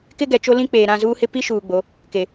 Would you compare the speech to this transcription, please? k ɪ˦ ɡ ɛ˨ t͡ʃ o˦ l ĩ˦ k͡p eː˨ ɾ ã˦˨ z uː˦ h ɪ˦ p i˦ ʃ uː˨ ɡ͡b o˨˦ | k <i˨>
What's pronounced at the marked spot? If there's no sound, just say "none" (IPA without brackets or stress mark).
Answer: e˨